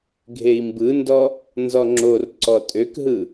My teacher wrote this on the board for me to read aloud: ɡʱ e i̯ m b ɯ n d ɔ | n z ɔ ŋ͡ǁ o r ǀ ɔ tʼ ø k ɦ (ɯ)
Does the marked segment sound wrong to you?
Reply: no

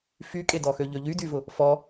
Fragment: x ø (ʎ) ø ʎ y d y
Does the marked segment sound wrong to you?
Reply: no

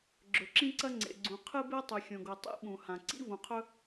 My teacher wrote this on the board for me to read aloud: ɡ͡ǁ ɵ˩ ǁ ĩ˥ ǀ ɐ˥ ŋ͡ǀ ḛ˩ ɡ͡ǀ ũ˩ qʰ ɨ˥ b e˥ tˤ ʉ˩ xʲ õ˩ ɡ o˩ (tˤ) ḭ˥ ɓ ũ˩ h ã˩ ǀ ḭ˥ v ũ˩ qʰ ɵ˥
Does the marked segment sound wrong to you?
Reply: no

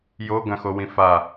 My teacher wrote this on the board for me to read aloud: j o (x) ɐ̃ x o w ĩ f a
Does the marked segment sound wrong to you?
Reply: yes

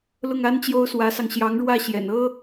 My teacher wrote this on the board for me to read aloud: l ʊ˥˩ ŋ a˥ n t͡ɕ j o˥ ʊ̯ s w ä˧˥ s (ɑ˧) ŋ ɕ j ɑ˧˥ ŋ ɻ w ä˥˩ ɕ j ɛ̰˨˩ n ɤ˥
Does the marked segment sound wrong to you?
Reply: no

